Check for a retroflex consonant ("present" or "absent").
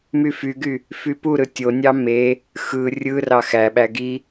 absent